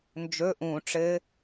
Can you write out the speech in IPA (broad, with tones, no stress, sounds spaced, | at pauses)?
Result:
n d͡ʒ ɵ˧˥˧ ʔ ũ˨˩˦ ʈ͡ʂ ɘ˦˥